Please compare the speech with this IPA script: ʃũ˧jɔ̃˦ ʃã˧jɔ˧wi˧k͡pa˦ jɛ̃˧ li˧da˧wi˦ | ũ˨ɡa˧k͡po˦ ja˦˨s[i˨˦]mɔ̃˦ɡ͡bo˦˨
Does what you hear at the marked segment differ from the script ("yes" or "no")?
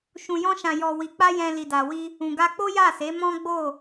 yes